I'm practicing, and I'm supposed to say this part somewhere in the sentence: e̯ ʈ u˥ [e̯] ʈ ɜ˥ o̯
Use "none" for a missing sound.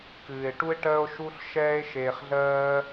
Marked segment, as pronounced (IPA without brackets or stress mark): e̯